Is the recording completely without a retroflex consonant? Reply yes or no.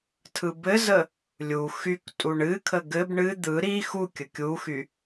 no